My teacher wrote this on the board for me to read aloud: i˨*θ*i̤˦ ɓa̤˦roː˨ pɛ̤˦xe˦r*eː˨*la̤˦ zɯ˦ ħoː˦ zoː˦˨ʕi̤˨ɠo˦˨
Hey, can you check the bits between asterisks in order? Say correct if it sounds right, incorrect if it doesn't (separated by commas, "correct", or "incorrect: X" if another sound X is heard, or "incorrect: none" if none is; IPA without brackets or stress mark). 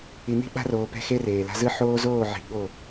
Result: incorrect: n̪, correct